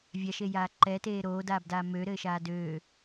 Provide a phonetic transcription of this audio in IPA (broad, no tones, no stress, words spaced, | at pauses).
vʲaʃejaː ǃɛteː ɾoːdaːbdaː møɾɘːʃaː døː